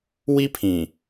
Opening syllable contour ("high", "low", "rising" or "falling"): high